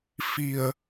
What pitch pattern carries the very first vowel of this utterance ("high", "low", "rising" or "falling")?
low